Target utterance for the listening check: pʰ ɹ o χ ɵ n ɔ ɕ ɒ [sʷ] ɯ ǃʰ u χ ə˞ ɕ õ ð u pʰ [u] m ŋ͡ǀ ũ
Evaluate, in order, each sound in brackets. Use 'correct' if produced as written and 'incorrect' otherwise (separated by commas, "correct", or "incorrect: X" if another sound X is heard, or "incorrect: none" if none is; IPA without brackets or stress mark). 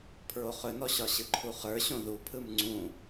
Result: incorrect: ɕ, incorrect: ɯ